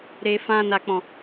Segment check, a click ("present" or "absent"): absent